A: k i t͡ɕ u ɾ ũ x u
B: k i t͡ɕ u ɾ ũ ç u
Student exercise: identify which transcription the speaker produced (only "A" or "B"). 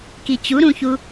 B